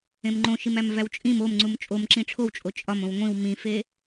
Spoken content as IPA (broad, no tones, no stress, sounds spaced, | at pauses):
ẽ m ŋ͡ǃ õ ʃ i m æ m v æ w t͡ʃʼ ĩ m o m ŋ͡ǀ u m t͡ʃʼ o m ǁ ĩ ʈ͡ʂʰ o w t͡ʃʼ o t͡ʃʼ ɒ m õ w ŋʷ ĩ w m ĩ f e